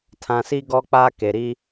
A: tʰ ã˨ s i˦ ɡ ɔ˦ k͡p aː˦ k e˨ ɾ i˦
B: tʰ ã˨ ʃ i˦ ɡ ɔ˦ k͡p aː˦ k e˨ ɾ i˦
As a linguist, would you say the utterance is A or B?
A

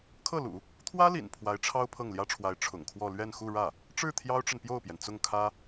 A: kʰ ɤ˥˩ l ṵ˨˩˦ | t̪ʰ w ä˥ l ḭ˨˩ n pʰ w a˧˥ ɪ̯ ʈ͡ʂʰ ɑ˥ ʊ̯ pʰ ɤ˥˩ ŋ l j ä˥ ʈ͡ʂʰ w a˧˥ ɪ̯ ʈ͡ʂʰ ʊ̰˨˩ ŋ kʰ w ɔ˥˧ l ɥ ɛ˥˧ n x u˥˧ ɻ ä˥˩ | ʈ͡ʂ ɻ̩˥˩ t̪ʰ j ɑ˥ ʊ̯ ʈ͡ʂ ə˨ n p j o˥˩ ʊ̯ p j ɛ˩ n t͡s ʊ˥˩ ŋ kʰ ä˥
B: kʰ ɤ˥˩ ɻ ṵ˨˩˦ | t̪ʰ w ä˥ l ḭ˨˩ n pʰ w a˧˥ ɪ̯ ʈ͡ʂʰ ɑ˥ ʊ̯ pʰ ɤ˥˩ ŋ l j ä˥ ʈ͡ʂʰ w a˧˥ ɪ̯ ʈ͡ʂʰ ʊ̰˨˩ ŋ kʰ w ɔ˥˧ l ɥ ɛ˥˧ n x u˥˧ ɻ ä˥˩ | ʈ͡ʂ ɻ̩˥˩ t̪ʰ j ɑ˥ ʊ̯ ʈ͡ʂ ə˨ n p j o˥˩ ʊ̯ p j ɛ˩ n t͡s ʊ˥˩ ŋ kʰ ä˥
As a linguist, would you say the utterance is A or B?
A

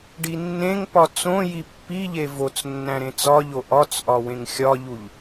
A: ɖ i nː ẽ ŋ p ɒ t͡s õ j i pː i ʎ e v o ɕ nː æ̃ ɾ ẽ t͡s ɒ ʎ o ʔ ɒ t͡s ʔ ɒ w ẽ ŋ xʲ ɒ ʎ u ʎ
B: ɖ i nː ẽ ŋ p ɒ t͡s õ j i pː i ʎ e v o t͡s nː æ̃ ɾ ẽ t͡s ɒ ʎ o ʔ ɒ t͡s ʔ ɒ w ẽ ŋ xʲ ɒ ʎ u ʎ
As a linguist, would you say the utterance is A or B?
B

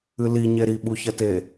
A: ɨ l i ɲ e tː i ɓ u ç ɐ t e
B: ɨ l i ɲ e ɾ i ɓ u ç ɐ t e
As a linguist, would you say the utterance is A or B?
B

